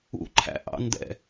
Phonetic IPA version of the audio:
ṵ ǃʰ æ̰ ʔ ɑ̰ n d ɛ̰

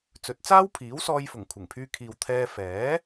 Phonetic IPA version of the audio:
t͡s ɵ˨˥ t̚ t͡s aː˥ w pʰ iː˨˥ w s ɔː˧ j f ʊ˨˩ ŋ kʷʰ ɪ˨˩ ŋ pʰ yː˧ kʰ iː˨ w t̪ʰ ɛː˧ f ɛː˨˥

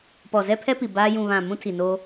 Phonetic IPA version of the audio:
p ɔ˨ z ɛ˦ pʰ ɛ˦ p i˨ b aː˦ j ũ˨ β ã˦˨ m ũ˦ tʰ i˨ n o˦

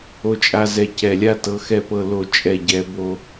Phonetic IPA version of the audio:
o˦ t͡ʃʼ a˦ z ɛ˦˨ c ɛ˦˨ lʲ a˦ t ɤ˨˦ x ɛ˦˨ p ɤ˦˨ l o˦˨ t͡ʃʼ ɛ˦˨ ɟ ɛ˨˦ b o˦

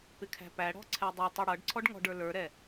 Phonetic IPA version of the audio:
p ɪ kʰ æ̤ p æ ɽ ɔ̤ ǀʰ ɛ dˤ ʌ tˤ ɛ ɽ ʌ ɖ ǀʰ ɔ ɖ ŋ ɔ̤ ɖ ə˞ l ə˞ ɾ ɛ

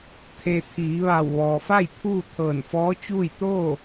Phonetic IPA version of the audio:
t̪ʰ e˧ t̪ʰ iː˩˧ ʋ a˧˩ w ʋ ɔː˩ f a˥˨ j pʰ uː˥˨ t̪ʰ ɤː˧˩ n f ɔː˧˥ t͡ɕ uː˥˨ j t̪ oː˥˨

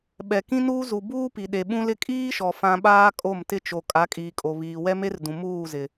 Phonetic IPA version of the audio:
ɓ ɛ˨ k ĩ˦ n uː˦ z u˨ b uː˦ p i˨ ɗ e˨ ɓ ũ˦ l ɪ˦ kʼ iː˦ ʃ ɔ˨ f ã˨ ɓ aː˦ kʼ o˦˨ m t ɪ˦ t͡ʃ o˨ kʼ a˨˦ kʼ iː˨ kʼ o˨ β iː˨ w ɛ˦ m e˦ r d ũ˨ m uː˦˨ z ɪ˨

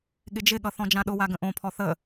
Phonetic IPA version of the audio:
ɠ ɪ d͡ʒ ɪ ɠ ʌ θ ɔ̃ d͡ʒ ã ɗ ʊ w a ɡ ə̃ ʔ õ pʰ ɔ θ ə

